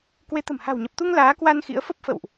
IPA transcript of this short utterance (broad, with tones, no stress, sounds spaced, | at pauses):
k w e˨˦ t̪ ə̤˨˩ m h a̤˨˩ w ɲ ə˨˩ p̚ t̪ u˧ ŋ l aː˨˦ k w a˧ n x ḭ˧˥ ə̯ f ə˦˥ p̚ f ə̰˧˨ w ʔ